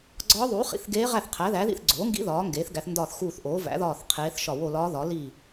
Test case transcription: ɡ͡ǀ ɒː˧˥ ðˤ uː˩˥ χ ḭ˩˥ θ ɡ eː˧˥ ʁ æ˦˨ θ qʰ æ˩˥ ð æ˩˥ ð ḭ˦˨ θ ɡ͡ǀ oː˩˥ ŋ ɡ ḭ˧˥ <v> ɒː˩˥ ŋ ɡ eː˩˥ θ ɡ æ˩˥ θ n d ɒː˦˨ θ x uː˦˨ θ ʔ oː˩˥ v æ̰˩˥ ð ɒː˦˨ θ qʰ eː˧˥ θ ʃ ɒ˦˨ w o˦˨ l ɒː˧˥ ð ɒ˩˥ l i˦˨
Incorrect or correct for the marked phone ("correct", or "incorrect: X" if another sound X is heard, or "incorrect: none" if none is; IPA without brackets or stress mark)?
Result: incorrect: ð